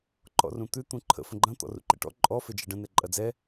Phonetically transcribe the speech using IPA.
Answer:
ǃ ɔ̰ r ũ t̪ ʉ t̪ ũ ǃʰ ə̰ f ə̃ ɡ͡ǃ ɐ̃ t̪ ɔ̰ r ṵ ǃ ɛ̰ ʈ ɔ̰ ǃʼ ɔ f e d͡ʒ ɛ ɖ ə̃ n ɛ ǃʼ ɐ d͡z ɛ

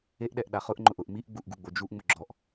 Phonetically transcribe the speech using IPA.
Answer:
e ʔ ɗ ɛ ʔ ɗ a χ ʊ ʔ ŋ͡ǃ ʊ ʔ ʊ ʔ m i ʔ ɡ͡b u ʔ ɡ u ɡ͡b o d͡ʒ u ʔ ŋ͡m ʊ ɡ͡ǁ ɔ ʔ

